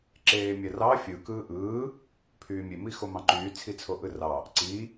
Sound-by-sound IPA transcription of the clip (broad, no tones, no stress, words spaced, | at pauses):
ǁeːmʲærɑ fʲɯ kɯːʔɯː | pʰyːmʲemixo mɑ̃ǃyːt͡sʰit͡sʰo ʔɯrɑ | ǀi